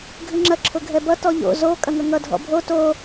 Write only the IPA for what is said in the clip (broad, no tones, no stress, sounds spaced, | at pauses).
ɡʱ ɨ ŋ͡ǁ ɐ ǁʰ ʊ ɡʱ ɛ b ʌ t ɔ ʎ o̰ z o kʼ ɐ ŋ ɐ ŋ ʌ dʱ ɔ̰ bʱ o t o